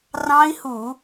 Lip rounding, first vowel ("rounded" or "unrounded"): unrounded